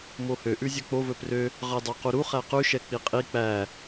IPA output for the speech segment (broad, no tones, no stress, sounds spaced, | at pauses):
m o h ø ʔ ʉ zʲ œ k͡p o v ɵ p r ø | ʁ ɑ d ɑ q u ɾ u χ æ q ʉ ʃ ɛ k͡p i qʼ i k͡p æ